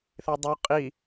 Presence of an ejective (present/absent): present